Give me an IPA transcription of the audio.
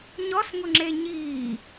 ɲ ɔ s ŋ ʊ ŋ͡ǁ e ɲ iː

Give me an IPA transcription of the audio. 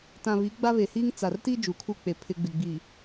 t ã˨ β i˨˦ ɡ͡b a˦ β e˨ h iː˦ ŋ t͡s a˨ r t i˦ d͡ʒ u˨ kʰ u˦ k͡p e˨ pʰ ɪ˦ ɡ͡b ɪ˨ ɡ͡b iː˨

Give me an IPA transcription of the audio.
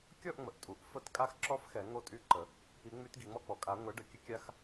kʲ ɔ˥˧ ʔ ŋ͡m ə˩ ʔ tʼ u˩˥ ʔ f ə˥˧ t kʼ a˥ x ǁ ɔ˥ f x ɛ˨˩˦ ŋ o˥˧ tʼ y˥˧ ǃ ə˨˩˦ | i˨˩˦ ŋ͡m y˨˩˦ t ɡ i˩ ŋ͡m ɔ˥˧ k͡p ɔ˩ kʼ a˨˩˦ ŋʷ ɛ˩˥ ɖ ə˩ kʲ ə˥ kʲ a˥ x

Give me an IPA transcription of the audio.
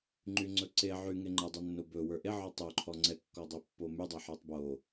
ŋ͡ǃ y ŋ͡ǀ ɵ ǀ e ʕ y ŋ e ŋ͡ǃ ə dˤ ɵ nː o b ɵ w ə˞ ʔ e ʕ ɔ tˤ o ǃʰ ɔ ŋ͡ǀ ɛ kː ɔ dˤ e pː o m y dˤ e ħ ə˞ tˤ b o

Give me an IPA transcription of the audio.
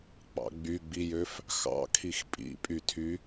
k͡p ɑ̰ ɡ͡b y ɡ͡b i j ø f | x ɑ̰ kʰ i x pʼ ḭ pʼ y tʰ y

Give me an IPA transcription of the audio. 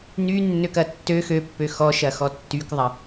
n y nː ø k ɐ tː ø x ø pː ø x ɔ ʃ ɐ x ɔ tː y k ðˤ ɐ

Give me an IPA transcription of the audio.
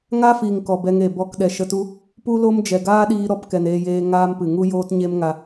ŋ a˦ f iː˨ ŋ k ɔ˨ b ɛ˧ ŋ e˨ b ɔ˧ k ɗ ɛ˨ ʃ ə˧ t u˦ | p u˦ l o˦ m d͡ʒ ɛ˨ ɡ aː˦ ɗ iː˧ ɾ ɔ˧ p k ɛ˨ n eː˧ j eː˧ ŋ aː˦ m p ɨ˨ ŋ u˦ j oː˦ t ɲ e˦ m ŋ a˧

